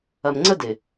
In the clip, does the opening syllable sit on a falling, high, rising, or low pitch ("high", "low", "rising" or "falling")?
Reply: low